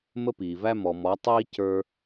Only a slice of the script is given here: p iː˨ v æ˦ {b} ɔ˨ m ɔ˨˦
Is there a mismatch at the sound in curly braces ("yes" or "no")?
yes